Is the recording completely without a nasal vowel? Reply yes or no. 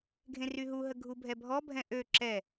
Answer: no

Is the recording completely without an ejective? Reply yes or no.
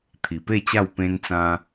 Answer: yes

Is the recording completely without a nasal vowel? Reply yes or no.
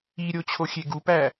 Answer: yes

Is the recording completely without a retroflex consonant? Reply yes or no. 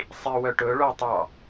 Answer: no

